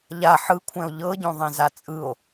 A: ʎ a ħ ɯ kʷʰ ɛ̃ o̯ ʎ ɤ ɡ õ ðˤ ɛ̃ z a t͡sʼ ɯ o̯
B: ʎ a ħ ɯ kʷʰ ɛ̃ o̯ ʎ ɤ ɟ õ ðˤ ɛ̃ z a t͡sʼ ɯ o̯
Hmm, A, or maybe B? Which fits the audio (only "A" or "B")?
B